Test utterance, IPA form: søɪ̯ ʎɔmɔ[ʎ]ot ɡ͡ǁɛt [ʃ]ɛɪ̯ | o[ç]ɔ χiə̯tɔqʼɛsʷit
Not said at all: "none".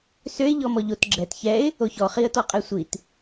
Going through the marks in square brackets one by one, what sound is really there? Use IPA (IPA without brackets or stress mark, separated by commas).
ʎ, ç, ç